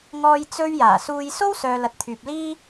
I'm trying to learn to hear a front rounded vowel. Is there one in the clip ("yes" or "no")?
yes